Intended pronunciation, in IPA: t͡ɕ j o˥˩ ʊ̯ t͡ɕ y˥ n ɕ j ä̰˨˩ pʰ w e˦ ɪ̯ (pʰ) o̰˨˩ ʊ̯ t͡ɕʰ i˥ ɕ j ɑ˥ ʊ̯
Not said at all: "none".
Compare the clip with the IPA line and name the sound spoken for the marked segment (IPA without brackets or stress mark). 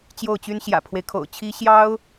kʰ